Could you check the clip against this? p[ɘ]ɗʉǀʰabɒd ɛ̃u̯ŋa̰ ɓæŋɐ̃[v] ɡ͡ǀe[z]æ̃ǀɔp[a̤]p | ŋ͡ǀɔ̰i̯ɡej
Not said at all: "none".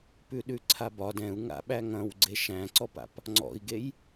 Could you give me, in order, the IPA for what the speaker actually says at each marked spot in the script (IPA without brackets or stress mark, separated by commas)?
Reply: ʉ, w, ʃ, a̰